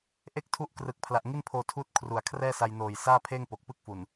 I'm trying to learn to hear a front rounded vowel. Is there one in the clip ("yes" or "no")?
no